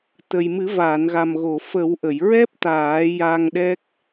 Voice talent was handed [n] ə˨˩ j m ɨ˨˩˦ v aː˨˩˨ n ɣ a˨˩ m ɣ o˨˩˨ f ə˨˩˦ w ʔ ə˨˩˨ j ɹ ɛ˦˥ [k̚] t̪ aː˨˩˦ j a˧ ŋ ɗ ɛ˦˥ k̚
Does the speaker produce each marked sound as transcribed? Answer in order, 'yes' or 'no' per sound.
no, no

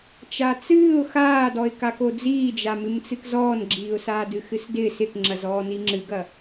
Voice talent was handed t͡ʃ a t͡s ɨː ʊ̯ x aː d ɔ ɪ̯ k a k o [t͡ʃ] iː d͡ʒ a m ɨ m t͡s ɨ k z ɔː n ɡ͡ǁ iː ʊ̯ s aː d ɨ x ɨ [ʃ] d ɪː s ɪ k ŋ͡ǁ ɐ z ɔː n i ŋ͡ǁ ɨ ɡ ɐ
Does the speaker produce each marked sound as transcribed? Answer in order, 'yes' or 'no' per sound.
no, no

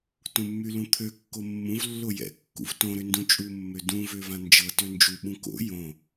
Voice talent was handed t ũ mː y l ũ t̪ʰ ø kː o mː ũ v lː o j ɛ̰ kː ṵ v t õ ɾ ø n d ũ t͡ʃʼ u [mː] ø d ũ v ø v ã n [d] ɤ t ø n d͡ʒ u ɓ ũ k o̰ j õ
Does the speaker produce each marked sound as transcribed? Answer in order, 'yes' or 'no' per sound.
yes, no

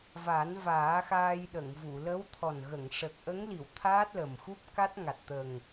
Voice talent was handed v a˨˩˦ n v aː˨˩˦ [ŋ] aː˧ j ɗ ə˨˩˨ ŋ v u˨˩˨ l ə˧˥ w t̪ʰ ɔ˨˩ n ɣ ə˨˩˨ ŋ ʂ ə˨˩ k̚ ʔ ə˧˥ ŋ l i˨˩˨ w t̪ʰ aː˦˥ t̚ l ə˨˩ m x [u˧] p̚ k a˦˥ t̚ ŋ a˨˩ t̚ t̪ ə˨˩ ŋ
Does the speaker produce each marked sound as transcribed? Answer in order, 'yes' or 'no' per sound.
no, no

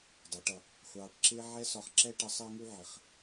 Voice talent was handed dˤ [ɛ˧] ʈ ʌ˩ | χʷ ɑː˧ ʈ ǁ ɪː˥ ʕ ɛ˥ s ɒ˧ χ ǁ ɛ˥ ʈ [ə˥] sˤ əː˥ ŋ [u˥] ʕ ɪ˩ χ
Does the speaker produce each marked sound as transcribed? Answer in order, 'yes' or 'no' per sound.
no, no, yes

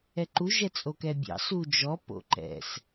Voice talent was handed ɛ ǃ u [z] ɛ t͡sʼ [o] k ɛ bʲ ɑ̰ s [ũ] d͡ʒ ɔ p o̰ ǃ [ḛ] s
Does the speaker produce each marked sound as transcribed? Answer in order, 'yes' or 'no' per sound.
no, yes, no, no

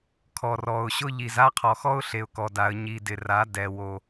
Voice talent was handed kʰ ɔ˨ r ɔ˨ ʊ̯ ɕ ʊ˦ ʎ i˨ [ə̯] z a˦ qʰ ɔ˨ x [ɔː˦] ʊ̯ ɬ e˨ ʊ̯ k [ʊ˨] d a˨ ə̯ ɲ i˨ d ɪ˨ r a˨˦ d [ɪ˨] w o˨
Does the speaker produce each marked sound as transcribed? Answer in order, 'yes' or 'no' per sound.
no, no, no, no

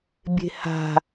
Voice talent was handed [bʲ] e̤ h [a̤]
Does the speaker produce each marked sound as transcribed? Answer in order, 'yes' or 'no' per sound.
yes, yes

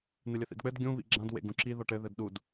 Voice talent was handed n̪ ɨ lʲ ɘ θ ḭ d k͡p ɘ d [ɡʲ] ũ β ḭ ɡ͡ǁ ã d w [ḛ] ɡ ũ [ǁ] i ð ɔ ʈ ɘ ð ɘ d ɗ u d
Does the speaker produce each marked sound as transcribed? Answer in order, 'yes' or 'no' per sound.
yes, yes, yes

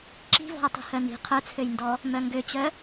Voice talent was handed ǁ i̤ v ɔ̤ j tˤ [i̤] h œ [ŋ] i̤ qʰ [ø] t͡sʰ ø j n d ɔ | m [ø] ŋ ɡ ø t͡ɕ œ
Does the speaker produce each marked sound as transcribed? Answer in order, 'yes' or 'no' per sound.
yes, no, no, no

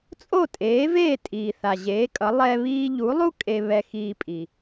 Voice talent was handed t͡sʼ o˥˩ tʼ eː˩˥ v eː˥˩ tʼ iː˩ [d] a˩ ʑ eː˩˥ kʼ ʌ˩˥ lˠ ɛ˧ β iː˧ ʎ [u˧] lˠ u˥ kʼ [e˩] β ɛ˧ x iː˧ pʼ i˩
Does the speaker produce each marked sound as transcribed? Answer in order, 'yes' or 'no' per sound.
no, no, no

